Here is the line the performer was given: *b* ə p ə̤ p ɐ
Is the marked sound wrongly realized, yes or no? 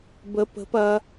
no